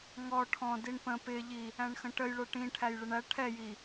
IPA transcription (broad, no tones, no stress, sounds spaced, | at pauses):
ŋ ɔ ʈʰ ɔ̃ d i ɳ p ə̃ p ɪ ʎ i | æ̃ ɳ x ə̃ ʈ ə j ɭ ə˞ ʈ ĩ ʈʰ æ j ɭ ɪ ɳ æ ʈʰ ɛ j i